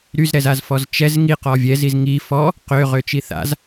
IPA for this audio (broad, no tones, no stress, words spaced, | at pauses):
ɾyzɾɛzazfɔz t͡ʃɛz ŋiqɔ vʲɛziz ŋi fɔ | qøʁøt͡ʃi θa̰z